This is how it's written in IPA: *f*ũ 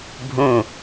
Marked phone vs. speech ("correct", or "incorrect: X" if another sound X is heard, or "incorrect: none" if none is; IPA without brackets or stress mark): incorrect: bʱ